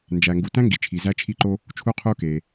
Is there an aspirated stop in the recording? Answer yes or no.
yes